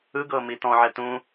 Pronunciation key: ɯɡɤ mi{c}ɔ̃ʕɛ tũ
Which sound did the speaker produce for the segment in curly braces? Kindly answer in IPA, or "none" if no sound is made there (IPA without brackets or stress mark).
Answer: t